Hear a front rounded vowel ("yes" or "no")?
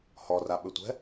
yes